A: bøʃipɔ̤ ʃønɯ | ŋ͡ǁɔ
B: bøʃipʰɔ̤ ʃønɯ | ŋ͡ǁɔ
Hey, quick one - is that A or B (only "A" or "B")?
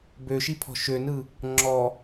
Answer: B